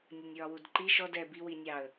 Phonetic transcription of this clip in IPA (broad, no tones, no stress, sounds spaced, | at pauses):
nʲ ə nʲ ɹ ɒ w u d ǃ i ʃ ɔ d ɛ b i w i nʲ ɑ ə̯